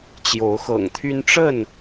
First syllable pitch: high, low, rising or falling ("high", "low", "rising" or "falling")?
rising